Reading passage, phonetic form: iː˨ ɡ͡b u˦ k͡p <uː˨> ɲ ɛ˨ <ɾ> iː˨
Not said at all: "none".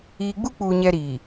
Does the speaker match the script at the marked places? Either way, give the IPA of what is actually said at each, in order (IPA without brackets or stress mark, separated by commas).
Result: uː˨, ɾ